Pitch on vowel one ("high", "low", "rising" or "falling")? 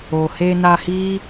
low